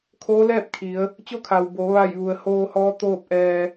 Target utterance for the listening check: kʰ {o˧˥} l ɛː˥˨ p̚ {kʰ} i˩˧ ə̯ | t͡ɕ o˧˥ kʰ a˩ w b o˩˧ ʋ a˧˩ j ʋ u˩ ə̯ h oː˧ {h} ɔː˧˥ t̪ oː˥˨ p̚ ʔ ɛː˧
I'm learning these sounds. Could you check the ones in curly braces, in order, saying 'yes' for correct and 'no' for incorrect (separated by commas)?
no, yes, yes